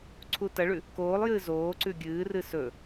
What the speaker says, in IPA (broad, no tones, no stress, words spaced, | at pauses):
ǀʰutɐɭʉ | koːlˠjɨː zoːǀʉ ɡʲɨːrɨ sɵ